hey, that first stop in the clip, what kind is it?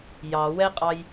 ejective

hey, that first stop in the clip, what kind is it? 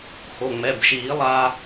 plain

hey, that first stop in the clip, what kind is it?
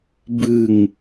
plain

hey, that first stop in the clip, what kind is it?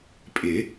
ejective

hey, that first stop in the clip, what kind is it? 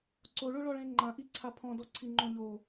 click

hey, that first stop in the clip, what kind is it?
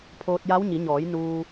aspirated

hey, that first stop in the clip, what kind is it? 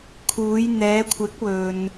aspirated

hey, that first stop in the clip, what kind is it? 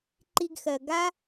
click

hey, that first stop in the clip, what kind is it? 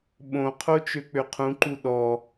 implosive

